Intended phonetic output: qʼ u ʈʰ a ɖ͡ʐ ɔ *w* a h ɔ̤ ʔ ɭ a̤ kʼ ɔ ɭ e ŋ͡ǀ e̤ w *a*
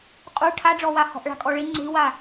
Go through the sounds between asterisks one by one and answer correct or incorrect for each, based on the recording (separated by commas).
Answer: correct, correct